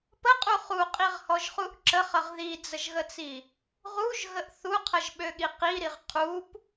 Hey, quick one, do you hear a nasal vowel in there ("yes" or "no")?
no